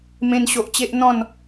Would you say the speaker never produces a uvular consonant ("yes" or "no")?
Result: yes